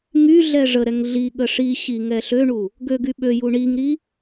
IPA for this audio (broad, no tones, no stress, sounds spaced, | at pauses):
ŋ y ɮ ɛ ʐ ə ɾ ɛ ŋ ɮ i ɠ ə ʂ i ɕ i ŋ ɛ ɬ ø ɳ u | ɡ ø ɡ y ɓ ø j u ɳ i ŋ ɾ i